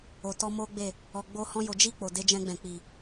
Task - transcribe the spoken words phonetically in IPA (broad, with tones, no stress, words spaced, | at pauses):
o˨tɔ˧ mo˦ɡ͡be˦˨ | ɔ˨ɡ͡bo˧hɔ̃˧ jo˨d͡ʒi˧ k͡po˨de˧d͡ʒɛ̃˧ ɡ͡bɛ̃˨k͡pi˨